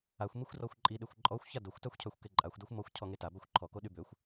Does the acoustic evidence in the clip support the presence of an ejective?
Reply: yes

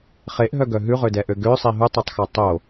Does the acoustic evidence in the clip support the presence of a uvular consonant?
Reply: yes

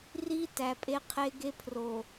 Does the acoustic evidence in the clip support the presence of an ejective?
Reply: yes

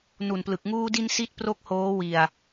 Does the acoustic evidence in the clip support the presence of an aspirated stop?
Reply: no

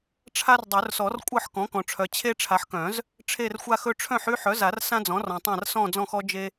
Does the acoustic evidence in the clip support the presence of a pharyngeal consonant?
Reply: yes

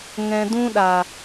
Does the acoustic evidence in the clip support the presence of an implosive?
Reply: yes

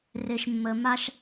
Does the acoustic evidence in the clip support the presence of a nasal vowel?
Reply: no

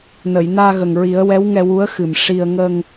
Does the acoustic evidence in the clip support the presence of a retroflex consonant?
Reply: yes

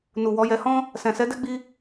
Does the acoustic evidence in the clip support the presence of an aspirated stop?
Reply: no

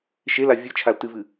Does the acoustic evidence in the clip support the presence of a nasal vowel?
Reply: no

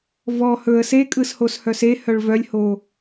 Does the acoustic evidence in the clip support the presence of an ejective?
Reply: yes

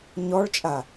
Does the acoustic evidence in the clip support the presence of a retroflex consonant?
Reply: yes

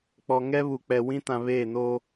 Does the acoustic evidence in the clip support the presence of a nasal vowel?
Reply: yes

